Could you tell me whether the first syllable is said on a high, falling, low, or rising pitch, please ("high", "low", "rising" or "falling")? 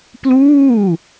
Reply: falling